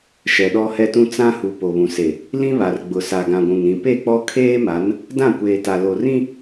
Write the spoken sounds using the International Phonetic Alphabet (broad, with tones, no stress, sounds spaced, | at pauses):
ʃ ɛ˨ ɗ ɔ˦ h ɛ˦ t ũ˦ t͡s ã˦ h u˨ p o˨ β ũ˨ s e˨ | l ĩ˦ β a˨ r ɡ͡b ʊ˨ s a˨ ɡ ã˨ ɡʷ ũ˨ ŋ ɾ ĩ˨ p e˦˨ k͡p ɔ˦ kʰ eː˦ m a˨˦ n | d ã˦˨ kʷ eː˨ t a˨ l o˨ r ĩ˦